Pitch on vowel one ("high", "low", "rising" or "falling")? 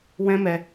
high